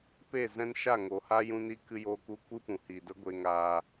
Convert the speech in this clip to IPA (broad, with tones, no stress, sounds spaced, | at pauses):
p e˦˨ z ɛ̃˦ n ʃ a˦˨ ŋ o˨ h a˦ j ũ˧ n i˧ k ɨ˧ j oː˧ k u˧ kʷ ɨ˦ p ũ˨ h i˨ d ə˦ ɡʷ e˧ ŋ aː˧